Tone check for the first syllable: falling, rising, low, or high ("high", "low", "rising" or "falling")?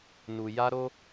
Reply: low